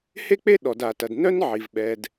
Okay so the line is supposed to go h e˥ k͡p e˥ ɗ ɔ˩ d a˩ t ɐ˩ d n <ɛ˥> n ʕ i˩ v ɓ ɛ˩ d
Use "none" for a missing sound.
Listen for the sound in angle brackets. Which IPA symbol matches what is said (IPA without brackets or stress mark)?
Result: œ˥